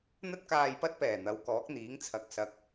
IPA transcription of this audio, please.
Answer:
n̪ ɐ˥ t̚ k aː˧ j p ɐ˥ t̚ p ɛː˨˩ n̪ ɐ˨˧ w k ɔː˨˥ k̚ n̪ iː˨˥ ŋ t͡sʰ ɐ˨˥ k̚ s ɐ˨˥ k̚

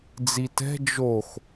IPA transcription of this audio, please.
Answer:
d͡z i t ɛ̤ d͡ʒ o x

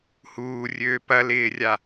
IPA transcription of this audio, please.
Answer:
h uː rʲ øː p ɐ l ɪː rʲ a

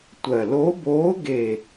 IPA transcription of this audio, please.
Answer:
tʷ ɜ˨˩ l o˧˥ b oː˧˥ ɡ e˨˩

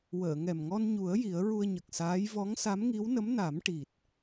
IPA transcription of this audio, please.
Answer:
w əː˨˩˨ ŋ ɛ˨˩ m ŋ ɔ˧ n ɲ u˨˩˦ ə̯ j i˨˩˦ ə̯ ɹ u˧ ə̯ ɲ ə˨˩ k̚ s aː˧˥ j v ɔ˧˥ ŋ s a˧˥ m ŋ i˧˥ w n ə˧˥ m n a˨˩˦ m ʈ i˨˩ t̚

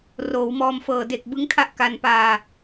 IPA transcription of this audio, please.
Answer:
r oː˩˦ w m ɔː˧ m f ɤː˨˩ d e˨˩ k̚ b ɯ˦˥ ŋ tʰ a˥˩ ʔ k a˧ n p aː˧

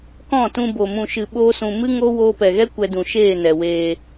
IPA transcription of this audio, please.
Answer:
k ɔ̃˦˨ t ũ˧ b o˨ m ũ˨ ʃ ɨ˨ ɓ oː˦ s ũ˧ m ɨ˦ ŋ o˦ w oː˧ p ɛ˨ ɣ ɛ˦ kʷ ɛ˧ d ũ˨ ʃ eː˦˨ n ɛ˨ w eː˧

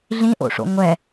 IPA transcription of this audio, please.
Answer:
ɮ ĩ ʔ o̰ ʂ o̰ ŋʷ ɛ

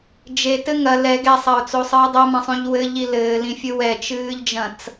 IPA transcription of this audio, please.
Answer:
d͡ʒ e t ɘ ŋ ɐ l ɛ ɡ ɛ sˤ ɐ ʊ̯ t͡s o sˤ ɨː dˤ ɐ m ɐ̃ sˤ ũ ʎ w ɘ ʎ i l ɘː l ĩ fʲ ɨ w ɛ t͡ʃ ɨː ʎ d͡ʒ ɐ̃ t͡s

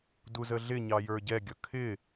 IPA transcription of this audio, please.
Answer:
d u z ə ɮ ɪ ɲ ɑ j ə˞ ɟ ɛ ɡʲ ʌ kʰ ɪ

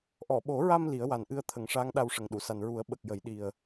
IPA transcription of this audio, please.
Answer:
ʔ ɔ˨˩˨ ɓ o˨˩˦ ɹ a˧ m l i˨˩˦ ə̯ w a˨˩ n ʔ ɨ˧ ə̯ t̪ʰ ə˨˩˦ ŋ ʂ aː˧˥ ŋ ɗ a˧ w ʂ ə˨˩ ŋ ɗ u˨˩˨ s a˨˩ n ɹ u˨˩˦ ə̯ ɓ ə˨˩ k̚ j ə˨˩˦ j ɗ i˨˩ ə̯

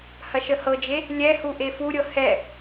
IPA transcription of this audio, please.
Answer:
h ɐ ʃ ə h ɤ d͡ʒ e | lʲ ɛ h u ʔ e f u ɾʲ ɤ h ɛ

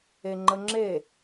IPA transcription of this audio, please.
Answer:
e ŋ͡ǃ ə ŋ͡ǁ e

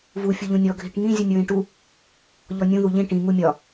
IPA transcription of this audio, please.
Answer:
v u fʲ u ʎ ũ nʲ ɔ ɡʱ i ʈ ŋ ĩ zʲ u nʲ ɹ ĩ ʈ u | ʎ ɔ nʲ ũ ð u ʎ ĩ ʈ ĩ ŋ u mʲ ɒ

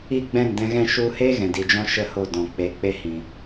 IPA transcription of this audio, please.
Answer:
i˦˨ ɡ͡b ɛ̃˦˨ n d ɛ̃˧ ɣ ɛ̃˦˨ ʃ u˧ h e˦ ɣ ɛ̃˨ d i˨ d͡ʒ ɔ̃˦ ʃ ə˦ h o˦˨ d ɔ̃˨ k͡p e˨˦ k͡p e˦ h ĩ˨

